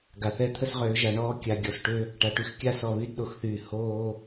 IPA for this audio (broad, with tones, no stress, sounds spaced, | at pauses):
ɡ a˨ θ ɛ˦ t̪ʰ ə˦ s ʁ øː˨˦ ʒ a˨ ɳ ɔː˦ kʲ a˨ ɡʲ ɔ˨ s ʈ ø˦ | ʈ a˨ ʈ y˦ x kʲ a˦ s ɔ˨ β y˦ d ɗ o˨ x θ yː˨ h oː˦